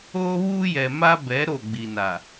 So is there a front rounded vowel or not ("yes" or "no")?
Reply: no